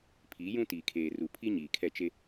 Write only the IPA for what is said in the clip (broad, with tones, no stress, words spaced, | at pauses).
pʰiː˨˦jũ˦ tiː˨kʰeː˨ru˨pʰi˦ ɲiː˨kʰɛ˦˨t͡ʃe˦